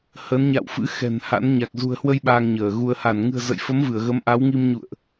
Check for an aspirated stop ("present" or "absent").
absent